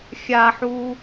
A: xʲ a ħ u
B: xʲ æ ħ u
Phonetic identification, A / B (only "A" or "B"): A